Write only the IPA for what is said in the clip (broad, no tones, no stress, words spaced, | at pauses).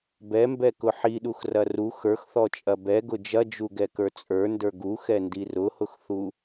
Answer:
bɛmbɛkʊ ħiɗuxrɐ ru xə˞xθɔt͡ʃʼɐ bɛɡʊ d͡ʒɐd͡ʒuɡɛkə˞ t͡sʼə˞ndə˞ ɡuxɛndi rʊhʊxθu